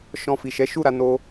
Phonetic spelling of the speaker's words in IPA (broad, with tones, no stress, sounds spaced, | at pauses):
ʃ ɔ̃˧ f i˨ ʃ ɛ˨˦ ʃ u˦˨ ɾ a˧ n o˧